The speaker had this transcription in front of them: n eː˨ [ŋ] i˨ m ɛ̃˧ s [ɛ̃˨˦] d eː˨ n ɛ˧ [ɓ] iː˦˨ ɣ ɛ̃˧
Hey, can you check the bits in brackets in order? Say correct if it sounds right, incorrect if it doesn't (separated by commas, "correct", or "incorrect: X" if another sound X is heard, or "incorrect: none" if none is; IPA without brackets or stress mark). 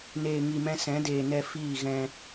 correct, correct, incorrect: f